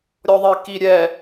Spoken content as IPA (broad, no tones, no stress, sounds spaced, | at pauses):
ɾʲ ɔ ðˤ i k i ɾʲ ɛ